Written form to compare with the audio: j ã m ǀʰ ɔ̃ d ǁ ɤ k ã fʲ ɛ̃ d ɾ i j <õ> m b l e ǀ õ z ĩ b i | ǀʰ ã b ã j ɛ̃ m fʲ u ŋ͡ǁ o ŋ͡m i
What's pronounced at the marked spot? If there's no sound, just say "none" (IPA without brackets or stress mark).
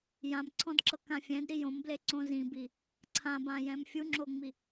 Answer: õ